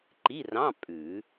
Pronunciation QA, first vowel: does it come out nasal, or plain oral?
oral